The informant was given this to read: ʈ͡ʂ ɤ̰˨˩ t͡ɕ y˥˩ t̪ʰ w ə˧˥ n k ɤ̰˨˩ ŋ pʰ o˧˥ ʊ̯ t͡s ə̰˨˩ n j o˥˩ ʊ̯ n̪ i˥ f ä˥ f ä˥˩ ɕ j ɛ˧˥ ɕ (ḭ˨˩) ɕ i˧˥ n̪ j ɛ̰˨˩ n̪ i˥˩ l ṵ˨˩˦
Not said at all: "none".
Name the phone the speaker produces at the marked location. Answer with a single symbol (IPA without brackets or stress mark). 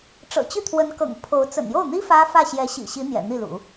ḭ˨˩